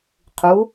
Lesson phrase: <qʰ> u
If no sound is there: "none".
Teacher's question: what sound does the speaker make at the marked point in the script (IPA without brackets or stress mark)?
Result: qʰ